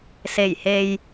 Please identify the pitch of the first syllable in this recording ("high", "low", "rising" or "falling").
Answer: low